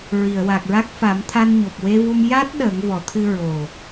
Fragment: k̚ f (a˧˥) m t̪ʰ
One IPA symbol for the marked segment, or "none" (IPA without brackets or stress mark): a˨˩˦